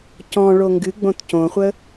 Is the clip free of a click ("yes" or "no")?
yes